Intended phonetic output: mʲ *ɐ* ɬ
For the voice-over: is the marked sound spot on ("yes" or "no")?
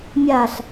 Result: no